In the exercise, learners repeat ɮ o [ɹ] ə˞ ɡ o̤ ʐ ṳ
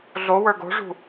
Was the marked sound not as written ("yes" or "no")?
yes